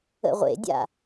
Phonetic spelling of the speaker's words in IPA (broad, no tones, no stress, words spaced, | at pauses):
ə̰ʁʷḛdʲa̰